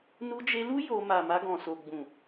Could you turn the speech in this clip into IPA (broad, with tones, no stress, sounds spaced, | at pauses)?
n u˧ d͡ʒ e˧ l u˦ j o˧ m a˨ m a˧ ɡ ɔ̃˨ s o˨ ɡ͡b ũ˨